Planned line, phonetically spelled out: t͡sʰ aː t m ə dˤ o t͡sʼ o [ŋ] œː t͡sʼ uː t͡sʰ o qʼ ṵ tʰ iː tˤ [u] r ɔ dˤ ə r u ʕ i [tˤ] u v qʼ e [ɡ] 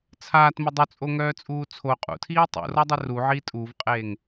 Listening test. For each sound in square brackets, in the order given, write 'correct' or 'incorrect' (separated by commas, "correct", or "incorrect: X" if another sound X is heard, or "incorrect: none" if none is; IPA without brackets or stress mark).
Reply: correct, incorrect: ṵ, incorrect: tʼ, incorrect: ŋ